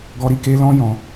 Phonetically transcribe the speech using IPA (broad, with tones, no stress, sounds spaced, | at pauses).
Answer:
ɡ ɔ˧ ɾ i˧ k e˧ l ɔ̃˧ j ɔ̃˨